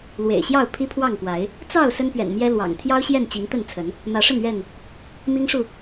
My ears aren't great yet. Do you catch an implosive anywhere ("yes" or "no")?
no